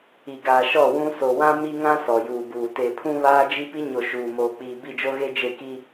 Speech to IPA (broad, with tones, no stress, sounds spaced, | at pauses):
i˨ ɡ aː˨ ʃ ɔ˦˨ w ũ˦ s o˨ w ã˦ m i˦ ŋ ã˦ s ɔ˨ j uː˨ b uː˨ t e˨ pʰ ũ˦ β aː˦ d͡ʒ i˦ p i˦ ɲ o˨ ʃ uː˨ m oː˨ k͡p iː˨ b i˦˨ d͡ʒ o˦ ɣ e˦ d͡ʒ e˦˨ k i˦